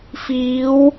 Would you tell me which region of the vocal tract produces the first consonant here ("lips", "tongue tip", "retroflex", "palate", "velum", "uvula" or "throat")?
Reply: lips